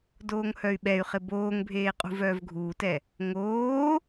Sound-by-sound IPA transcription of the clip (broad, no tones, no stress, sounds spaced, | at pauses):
d oː ŋ h œ y̯ ɓ ɛ y̯ χ ɪ b oː ŋ bʱ eː qʼ ṳ v œː v ɡʱ uː t ɛ | ŋ oː